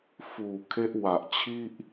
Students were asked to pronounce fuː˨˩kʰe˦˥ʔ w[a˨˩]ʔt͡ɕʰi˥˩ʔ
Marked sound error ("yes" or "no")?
no